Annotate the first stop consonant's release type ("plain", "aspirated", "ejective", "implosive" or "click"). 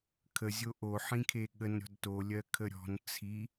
aspirated